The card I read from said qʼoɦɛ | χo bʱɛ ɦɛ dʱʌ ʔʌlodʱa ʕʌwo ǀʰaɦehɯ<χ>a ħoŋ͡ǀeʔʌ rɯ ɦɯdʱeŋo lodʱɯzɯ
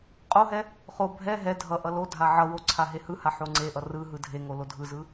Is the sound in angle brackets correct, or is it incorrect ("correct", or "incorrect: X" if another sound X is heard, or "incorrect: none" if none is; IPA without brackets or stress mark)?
incorrect: h